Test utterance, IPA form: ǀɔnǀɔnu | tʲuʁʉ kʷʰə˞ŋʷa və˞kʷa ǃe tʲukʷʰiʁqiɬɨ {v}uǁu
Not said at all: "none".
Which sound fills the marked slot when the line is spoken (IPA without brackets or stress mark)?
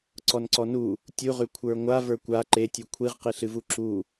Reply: v